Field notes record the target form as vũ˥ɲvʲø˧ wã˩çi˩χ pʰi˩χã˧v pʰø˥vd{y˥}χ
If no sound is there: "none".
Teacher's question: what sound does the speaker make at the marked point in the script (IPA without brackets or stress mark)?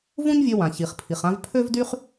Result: y˥